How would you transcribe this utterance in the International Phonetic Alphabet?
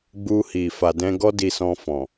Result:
ɡ͡b u˧ h i˨ f a˨ d ɛ̃˧ ɡ ɔ˦ d i˧ s ɔ̃˧ f ɔ̃˨

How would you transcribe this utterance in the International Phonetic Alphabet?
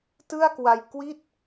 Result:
t ɯ˥˩ a̯ k w a˧ j k w i˥˩ t̚

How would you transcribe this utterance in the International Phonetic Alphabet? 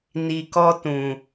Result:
n i˨ k ɔ˧ t ũ˨

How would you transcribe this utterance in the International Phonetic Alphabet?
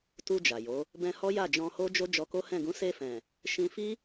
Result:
t u˧ d͡ʒ a˨ j o˨˦ | b ɛ̃˧ h ɔ˦ j a˦˨ d͡ʒ ɔ̃˧ h o˦ d͡ʒ o˦ d͡ʒ ɔ˧ k o˦ h ɛ̃˦˨ ɡ ũ˨˦ s e˧ f ɛ̃˨ | ʃ ĩ˧ f i˦

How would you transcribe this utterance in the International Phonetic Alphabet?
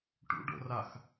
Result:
ʈ ṵ ɖ o̰ r a x

